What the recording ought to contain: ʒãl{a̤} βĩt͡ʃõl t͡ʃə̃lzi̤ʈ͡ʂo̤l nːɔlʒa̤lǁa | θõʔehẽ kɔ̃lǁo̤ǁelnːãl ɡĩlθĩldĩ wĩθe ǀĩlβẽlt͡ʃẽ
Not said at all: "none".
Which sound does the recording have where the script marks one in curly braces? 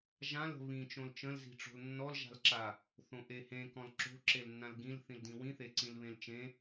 ə̤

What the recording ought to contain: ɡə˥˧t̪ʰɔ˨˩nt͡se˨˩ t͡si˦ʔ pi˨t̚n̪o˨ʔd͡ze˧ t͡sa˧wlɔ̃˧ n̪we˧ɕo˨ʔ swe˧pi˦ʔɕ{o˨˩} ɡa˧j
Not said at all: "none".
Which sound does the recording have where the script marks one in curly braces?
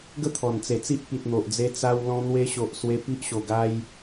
o˨˩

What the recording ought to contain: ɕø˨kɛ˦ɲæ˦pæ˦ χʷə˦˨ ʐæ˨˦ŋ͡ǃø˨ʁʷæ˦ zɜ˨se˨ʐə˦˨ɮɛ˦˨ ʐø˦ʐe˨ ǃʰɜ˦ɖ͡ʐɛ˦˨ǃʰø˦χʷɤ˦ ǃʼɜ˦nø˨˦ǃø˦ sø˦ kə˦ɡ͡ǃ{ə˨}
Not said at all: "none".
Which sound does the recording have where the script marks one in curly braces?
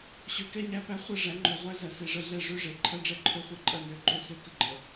ə˨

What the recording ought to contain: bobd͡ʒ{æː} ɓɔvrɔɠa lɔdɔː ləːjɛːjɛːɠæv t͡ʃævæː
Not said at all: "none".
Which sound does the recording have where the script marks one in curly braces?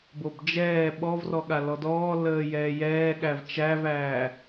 ɛː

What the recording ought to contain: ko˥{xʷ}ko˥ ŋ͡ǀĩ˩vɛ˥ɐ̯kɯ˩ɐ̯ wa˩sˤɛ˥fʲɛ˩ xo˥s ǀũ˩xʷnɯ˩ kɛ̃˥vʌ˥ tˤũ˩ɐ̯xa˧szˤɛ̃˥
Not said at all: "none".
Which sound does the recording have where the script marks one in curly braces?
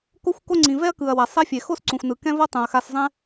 xʷ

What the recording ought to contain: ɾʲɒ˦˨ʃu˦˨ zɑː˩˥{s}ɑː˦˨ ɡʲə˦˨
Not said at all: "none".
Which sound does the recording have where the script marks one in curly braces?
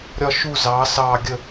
s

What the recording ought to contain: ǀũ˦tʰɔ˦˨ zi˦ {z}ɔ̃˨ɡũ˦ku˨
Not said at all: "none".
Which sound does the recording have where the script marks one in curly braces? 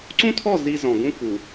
z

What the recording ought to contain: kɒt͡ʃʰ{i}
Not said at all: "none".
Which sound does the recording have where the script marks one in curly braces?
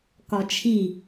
i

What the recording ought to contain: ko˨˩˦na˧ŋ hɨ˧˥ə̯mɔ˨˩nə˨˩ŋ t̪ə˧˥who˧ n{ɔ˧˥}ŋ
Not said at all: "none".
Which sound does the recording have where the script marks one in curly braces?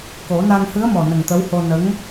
ə˧˥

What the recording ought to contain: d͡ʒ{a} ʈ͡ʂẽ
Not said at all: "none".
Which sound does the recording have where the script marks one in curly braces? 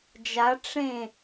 a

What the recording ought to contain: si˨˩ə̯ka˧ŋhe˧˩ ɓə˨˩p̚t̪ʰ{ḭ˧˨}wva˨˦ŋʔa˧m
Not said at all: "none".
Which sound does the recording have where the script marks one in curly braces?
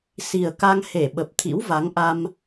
ḭ˧˥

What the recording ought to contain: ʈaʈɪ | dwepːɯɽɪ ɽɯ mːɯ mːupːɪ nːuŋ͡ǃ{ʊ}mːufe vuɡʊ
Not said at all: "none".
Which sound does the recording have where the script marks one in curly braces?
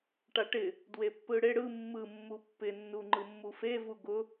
ɯ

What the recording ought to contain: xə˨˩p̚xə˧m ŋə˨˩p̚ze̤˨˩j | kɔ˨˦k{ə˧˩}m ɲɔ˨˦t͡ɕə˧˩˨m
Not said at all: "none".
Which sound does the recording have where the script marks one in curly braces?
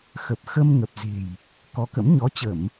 ə̰˧˥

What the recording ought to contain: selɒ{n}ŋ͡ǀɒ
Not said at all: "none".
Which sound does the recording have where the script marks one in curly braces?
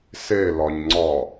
ɲ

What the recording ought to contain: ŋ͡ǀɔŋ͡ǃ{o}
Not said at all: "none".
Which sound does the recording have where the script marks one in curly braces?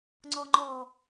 ɔ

